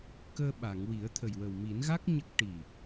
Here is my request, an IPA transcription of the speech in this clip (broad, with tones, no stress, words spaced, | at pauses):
kəː˧ɓa˨˩˨ŋwi˨˩˦ə̯ t̪ʰə˨˩jwə˨˩w mi˨˩˦nɣa˦˥k̚ ɲə˦˥k̚ ʈi˨˩